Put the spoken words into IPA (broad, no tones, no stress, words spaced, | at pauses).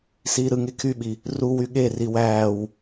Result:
siːɾɯŋe kʰyɓi | ru wyɠeri wæːw